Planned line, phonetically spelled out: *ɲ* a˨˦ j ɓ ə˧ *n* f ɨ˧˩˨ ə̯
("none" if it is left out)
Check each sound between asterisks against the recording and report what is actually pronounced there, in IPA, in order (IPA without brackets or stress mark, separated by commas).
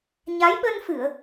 ɲ, n